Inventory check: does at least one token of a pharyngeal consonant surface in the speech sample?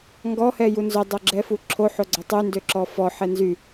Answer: yes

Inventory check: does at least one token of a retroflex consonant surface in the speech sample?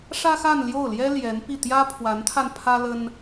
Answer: yes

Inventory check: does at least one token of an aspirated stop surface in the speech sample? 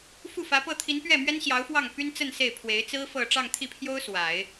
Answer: yes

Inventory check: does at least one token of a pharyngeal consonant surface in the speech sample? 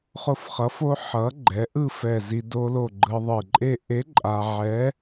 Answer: yes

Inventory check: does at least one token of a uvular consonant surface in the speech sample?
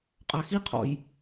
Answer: yes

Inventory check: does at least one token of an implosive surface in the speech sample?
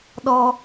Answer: yes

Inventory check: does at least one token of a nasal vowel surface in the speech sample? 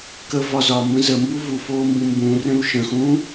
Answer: yes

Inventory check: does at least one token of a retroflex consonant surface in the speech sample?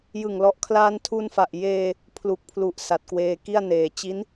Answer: no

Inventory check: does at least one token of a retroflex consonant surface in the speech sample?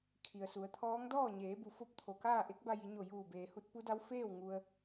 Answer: no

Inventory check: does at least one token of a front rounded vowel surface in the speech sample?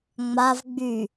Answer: yes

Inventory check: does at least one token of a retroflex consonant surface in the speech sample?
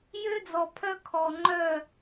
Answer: no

